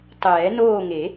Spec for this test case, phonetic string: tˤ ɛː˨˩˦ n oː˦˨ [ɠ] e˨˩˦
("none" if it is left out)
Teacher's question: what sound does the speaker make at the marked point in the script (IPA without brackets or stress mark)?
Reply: ŋ